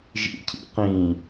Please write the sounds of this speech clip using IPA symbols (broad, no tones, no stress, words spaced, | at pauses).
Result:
ʒḭcʰḭ qĩ